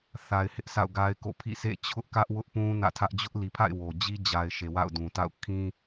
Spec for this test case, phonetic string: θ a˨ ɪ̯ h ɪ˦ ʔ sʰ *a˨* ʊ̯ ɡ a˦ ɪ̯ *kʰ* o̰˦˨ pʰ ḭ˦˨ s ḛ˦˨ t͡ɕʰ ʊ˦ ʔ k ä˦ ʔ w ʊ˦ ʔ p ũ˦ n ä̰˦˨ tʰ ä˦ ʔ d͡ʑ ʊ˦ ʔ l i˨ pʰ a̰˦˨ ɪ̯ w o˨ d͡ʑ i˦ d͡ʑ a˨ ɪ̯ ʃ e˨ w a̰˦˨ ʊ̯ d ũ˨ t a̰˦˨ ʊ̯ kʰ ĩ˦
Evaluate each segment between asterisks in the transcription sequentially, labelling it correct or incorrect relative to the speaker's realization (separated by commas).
incorrect, incorrect